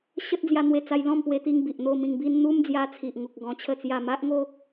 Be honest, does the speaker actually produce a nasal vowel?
yes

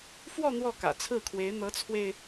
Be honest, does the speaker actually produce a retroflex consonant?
no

